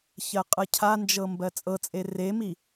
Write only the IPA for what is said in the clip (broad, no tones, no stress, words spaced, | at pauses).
çɜqʼɤcʰand͡ʒɤ mbɜt͡sʼɤt͡sʼe remi